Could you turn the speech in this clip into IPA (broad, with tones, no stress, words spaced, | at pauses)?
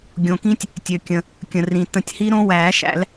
ɡʲõ˩kĩ˦˥tʲ | tʲø˩kʲə̃˩ | kʲə̃˩rĩ˩ tə̃˨˩˦tʲhi˦˥ ɾõ˦˥wæː˨˩˦ʃæ̰˨˩˦l